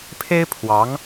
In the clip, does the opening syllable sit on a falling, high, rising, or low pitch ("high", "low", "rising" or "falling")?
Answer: high